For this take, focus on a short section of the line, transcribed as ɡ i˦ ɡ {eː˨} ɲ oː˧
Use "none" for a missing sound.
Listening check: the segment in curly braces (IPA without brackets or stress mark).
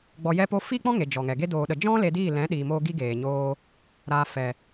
eː˨